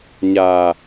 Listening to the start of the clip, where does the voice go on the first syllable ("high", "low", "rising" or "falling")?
low